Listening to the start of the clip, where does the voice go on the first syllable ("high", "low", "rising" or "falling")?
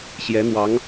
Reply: rising